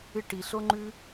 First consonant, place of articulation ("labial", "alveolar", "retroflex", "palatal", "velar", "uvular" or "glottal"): retroflex